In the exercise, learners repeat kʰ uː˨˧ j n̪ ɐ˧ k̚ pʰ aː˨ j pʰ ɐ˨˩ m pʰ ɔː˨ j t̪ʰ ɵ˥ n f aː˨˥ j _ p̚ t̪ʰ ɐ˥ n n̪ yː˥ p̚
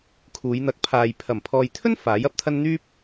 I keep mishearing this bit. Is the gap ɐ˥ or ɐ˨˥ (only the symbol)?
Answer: ɐ˨˥